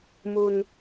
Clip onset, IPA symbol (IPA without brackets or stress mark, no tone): m